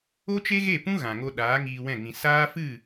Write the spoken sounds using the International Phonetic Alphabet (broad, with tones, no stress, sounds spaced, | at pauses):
o˦ t͡ʃ e˦ ɣ e˦˨ p ũ˦ ɣ ã˨ ŋ o˧ ɗ aː˨˦ ŋ iː˧ w ɛ̃˦˨ ŋ ĩ˨ s aː˦ f ɨ˦˨